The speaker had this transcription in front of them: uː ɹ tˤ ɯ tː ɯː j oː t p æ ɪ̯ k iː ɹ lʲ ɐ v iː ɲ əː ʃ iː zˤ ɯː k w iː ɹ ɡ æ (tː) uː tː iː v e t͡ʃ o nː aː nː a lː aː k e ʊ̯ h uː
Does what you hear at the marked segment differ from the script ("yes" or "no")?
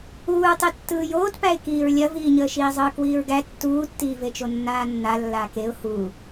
no